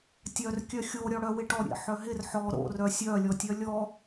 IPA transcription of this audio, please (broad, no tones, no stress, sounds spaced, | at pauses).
tʲ œ r kʲ œ xʲ o ɾʲ ɔ ɽ œ w ɪ ʈ ɔ ɾʲ ḛ ħ œ ɦ ɪ r ħ ɔ ɾ o̰ r œ sʲ œ lʲ ɔ tʲ œ lʲ ɔ